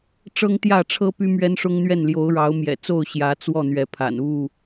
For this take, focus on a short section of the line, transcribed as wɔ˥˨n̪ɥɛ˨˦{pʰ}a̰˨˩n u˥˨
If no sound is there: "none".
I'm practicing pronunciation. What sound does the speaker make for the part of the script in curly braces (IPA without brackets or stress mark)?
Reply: pʰ